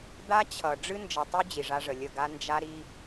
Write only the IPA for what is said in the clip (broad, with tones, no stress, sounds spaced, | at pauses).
d̪ a˦ t͡ɕʰ ʌ˨ ɖ͡ʐ ɨ˦ n d͡ʒ ʌ˨ tˤ y˦ d͡ʑ i˨ ʐ a˦ ʐ ə˨ lʲ ə˦˨ ɡ a˦ n d͡ʒ a˦ ɾ i˦